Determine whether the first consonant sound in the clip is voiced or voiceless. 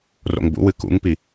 voiced